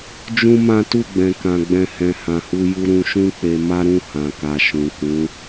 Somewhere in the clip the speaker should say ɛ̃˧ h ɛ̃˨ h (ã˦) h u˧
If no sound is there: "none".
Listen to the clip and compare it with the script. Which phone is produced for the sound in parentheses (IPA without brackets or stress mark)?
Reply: ã˨